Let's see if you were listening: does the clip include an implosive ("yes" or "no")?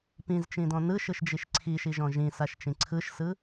no